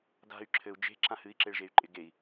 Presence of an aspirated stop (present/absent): present